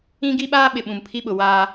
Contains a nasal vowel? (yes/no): yes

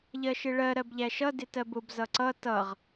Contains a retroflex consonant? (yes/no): yes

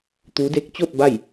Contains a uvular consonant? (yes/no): no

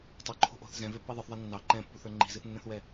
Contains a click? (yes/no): yes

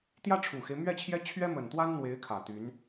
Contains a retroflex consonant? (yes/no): yes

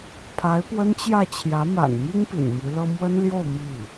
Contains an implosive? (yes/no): no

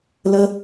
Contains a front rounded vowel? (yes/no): no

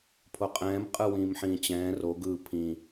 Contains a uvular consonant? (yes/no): yes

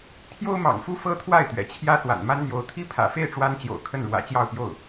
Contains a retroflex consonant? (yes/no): yes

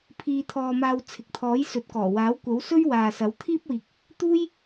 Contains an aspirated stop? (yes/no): yes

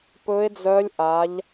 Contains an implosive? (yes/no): no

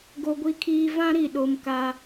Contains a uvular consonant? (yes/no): no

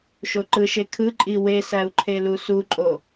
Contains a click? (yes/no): yes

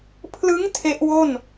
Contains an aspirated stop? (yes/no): yes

